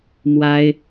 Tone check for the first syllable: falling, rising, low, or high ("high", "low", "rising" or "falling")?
high